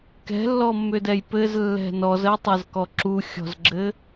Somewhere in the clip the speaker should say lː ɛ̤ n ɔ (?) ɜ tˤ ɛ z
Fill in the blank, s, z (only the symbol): z